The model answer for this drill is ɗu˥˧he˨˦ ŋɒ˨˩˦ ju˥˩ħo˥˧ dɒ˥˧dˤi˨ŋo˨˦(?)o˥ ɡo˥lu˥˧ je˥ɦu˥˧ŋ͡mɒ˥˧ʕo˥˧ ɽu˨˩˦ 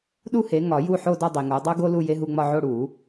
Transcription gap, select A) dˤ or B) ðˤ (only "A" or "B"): A